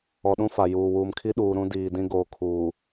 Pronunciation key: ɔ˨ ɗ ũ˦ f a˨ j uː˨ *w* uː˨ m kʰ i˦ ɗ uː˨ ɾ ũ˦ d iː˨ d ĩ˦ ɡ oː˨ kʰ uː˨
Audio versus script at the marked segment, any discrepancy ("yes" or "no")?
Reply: no